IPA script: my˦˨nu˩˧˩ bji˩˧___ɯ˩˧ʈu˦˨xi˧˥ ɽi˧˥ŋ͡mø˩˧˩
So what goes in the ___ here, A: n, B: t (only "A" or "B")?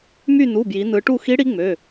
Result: A